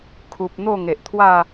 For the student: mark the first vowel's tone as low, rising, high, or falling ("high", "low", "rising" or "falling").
low